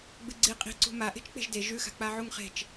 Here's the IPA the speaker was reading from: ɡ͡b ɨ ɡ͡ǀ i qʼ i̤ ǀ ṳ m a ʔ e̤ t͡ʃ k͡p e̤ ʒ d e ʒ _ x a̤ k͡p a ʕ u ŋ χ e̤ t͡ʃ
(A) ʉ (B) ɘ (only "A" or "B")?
A